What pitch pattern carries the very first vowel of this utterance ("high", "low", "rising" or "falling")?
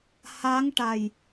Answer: rising